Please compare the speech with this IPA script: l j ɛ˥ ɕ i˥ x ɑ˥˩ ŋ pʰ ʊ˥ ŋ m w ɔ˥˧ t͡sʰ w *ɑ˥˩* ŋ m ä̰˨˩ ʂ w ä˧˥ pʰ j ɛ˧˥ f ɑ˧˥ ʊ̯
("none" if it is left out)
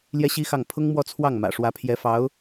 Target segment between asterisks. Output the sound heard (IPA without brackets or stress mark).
ɑ˥˩